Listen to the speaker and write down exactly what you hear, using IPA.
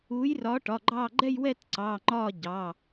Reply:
uː˨˥ j r ɒː˨˥ ʈ ɒ˩˧˩ ɡ͡ǃ ɑː˦˨ ɡ͡ǃ ɛ˦˨ j w ɛ˦˨ t ǀ ɑː˩˧˩ ŋ͡ǃ ɒː˦˨ ɟ ɑ˩˧˩

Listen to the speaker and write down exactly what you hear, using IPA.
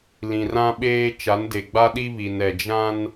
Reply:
l ĩ˨ r ã˦ ɓ eː˦ t͡ʃ a˨˦ n d e˨ ɡ͡b a˦ ɗ i˦ β i˨ n ɛ˨ d͡ʒ ã˦ n

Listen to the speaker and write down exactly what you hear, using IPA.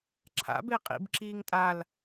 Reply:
ǁʰ a̰ b e qʼ ḭ b ǁ iː ŋ tʼ a l

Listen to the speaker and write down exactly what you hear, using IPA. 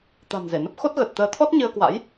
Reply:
t̪ a̤˨˩ n z e˧˩ n ə˦˥ p̚ x o˦˥ t̚ ɣ ə˨˩ t̚ t̪ əː˨˦ t̪ʰ ɔ˦˥ t̚ ɲ ɨ˧ ə̯ k w a̰˧˥ j

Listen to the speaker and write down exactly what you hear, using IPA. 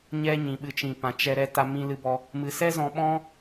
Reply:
ɲ ɛ˦ ɲ ĩ˨ ɓ ɨ˧ t͡ʃ ĩ˨ p ã˨ t͡ʃ ɛ˧ ɾ ɛ˧ t a˧ m ĩ˧ l ɨ˧ b ɔ˧ | m ɨ˨ s ɛ˦ z ɔ̃˧ ɓ ɔ̃˦

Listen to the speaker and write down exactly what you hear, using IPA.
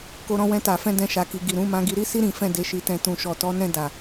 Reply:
k o˧ ɾ ɔ̃˧ w ɛ̃˧ t a˨ f ɛ̃˧ d ɛ̃˧ ʃ a˨ k i˨ ɡ i˨ ɾ ũ˨˦ m ã˧ ɡ i˧ ɾ i˧ s i˧ ɾ ĩ˨ f ɛ̃˨ d e˨ ʃ i˨ t ɛ̃˨ t ũ˨ ʃ ɔ˨ t ɔ˨˦ n ɛ̃˧ d a˨

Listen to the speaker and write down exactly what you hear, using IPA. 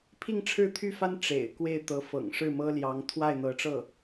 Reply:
pʰ i˥˩ ŋ ʈ͡ʂʰ ɻ̩˥ t̪ʰ y˥˩ f a˥ n ʈ͡ʂ ḛ˨˩ ɪ̯ k w e˥˩ ɪ̯ t̪ ɤ˧˥ f ɤ̰˨˩ ŋ ʂ ɻ̩˥˩ m ɤ˥ l j ɑ˧˥ ŋ t̪ʰ w a˥˩ ɪ̯ n̪ ɤ˧˥ ʈ͡ʂ ɤ˥˩

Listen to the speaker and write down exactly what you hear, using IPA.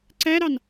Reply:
ǀ æ ɾ ɑ n

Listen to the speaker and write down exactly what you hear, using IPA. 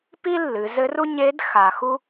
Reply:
p i˥ lː ɨ˩˧ z ɘ˧˥ r u˥ ɲ e˧˥ d x a˩ x u˥

